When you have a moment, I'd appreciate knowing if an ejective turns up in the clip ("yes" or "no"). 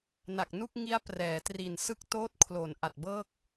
no